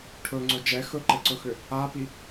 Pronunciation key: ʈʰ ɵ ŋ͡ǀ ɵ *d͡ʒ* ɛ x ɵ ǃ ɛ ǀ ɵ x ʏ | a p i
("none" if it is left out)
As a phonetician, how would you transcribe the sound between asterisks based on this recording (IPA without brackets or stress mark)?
d͡ʒ